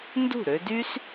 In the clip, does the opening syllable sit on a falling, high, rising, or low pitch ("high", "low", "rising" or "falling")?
falling